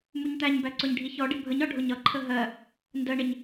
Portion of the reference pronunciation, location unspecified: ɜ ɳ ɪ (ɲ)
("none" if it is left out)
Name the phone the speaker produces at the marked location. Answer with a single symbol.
ɲ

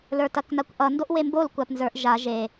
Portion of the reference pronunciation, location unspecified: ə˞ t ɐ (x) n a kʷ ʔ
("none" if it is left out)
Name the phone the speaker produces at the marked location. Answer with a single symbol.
k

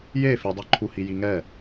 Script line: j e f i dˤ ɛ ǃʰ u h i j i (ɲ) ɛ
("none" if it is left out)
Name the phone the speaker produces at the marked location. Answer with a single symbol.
ŋ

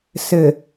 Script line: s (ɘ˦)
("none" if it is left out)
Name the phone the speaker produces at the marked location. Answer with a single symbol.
ɘ˨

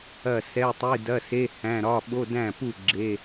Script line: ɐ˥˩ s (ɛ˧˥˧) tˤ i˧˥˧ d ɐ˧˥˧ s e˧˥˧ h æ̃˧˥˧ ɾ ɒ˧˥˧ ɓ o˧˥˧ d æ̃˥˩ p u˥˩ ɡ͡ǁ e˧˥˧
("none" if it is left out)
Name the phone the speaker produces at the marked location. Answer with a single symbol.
ɛ˧˥˧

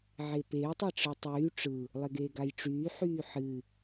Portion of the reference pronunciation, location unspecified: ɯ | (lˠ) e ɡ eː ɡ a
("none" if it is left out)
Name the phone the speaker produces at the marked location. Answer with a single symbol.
lˠ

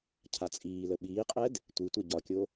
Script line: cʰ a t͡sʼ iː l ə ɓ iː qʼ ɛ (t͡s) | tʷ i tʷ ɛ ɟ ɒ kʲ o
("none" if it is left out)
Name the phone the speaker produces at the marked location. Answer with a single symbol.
d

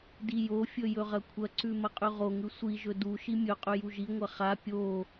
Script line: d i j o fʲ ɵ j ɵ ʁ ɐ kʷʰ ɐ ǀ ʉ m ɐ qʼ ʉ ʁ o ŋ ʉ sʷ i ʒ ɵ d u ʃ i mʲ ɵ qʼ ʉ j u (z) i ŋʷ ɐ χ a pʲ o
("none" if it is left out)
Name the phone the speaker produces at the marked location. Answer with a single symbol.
ʒ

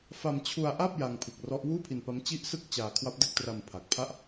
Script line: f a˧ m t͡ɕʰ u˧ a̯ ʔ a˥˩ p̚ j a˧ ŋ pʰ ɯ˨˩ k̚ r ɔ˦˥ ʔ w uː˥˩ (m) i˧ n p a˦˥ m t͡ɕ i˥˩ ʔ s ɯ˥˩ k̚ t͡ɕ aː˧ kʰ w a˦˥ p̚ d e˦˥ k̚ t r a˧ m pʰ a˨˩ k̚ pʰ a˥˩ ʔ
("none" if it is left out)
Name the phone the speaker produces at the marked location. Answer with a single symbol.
pʰ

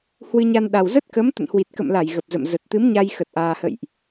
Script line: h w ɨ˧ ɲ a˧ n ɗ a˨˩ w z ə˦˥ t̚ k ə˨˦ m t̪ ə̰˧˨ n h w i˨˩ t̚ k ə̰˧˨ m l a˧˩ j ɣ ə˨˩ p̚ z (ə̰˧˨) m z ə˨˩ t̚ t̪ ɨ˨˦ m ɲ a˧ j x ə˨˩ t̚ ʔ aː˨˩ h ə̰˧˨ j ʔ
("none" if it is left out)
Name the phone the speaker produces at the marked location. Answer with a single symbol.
ə̰˧˨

